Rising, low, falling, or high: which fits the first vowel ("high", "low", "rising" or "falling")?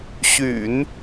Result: low